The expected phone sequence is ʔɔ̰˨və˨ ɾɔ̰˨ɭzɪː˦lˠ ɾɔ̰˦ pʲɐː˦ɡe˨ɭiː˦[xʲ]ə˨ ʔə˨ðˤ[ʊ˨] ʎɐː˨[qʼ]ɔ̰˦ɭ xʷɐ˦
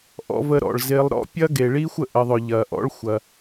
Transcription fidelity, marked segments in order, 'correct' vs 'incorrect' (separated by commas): incorrect, correct, incorrect